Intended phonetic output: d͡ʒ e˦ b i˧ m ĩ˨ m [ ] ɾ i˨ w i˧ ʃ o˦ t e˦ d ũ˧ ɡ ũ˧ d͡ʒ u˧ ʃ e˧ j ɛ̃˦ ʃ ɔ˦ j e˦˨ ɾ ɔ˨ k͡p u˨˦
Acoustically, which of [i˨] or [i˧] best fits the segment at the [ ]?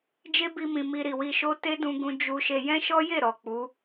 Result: i˧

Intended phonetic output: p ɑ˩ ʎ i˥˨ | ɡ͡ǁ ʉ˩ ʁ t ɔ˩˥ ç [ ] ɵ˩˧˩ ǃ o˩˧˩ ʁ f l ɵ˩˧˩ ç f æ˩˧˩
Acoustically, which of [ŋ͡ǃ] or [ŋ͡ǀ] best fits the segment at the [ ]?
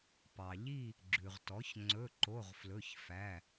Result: ŋ͡ǀ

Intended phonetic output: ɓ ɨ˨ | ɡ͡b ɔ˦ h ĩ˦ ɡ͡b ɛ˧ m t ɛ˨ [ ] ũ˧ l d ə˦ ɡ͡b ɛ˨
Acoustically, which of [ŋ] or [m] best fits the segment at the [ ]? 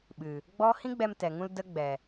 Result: ŋ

